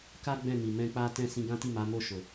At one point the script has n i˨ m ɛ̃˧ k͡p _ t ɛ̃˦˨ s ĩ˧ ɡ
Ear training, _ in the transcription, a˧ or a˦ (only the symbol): a˦